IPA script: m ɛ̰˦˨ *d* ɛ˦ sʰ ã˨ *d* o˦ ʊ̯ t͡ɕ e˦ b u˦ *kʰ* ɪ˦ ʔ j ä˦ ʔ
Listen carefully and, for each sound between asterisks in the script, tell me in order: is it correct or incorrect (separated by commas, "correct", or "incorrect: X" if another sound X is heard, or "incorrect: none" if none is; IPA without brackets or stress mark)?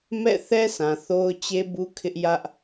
incorrect: θ, incorrect: θ, correct